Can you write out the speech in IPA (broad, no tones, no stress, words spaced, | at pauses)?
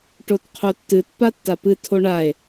ʈotqʰotːɨt patːapɨ tʰoɳae̯